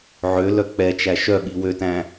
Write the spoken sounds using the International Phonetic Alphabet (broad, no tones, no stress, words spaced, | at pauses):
ʕølœ k͡pɛt͡ʃæ ʃœɓi wøtæ̃